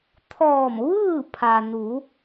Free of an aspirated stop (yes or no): no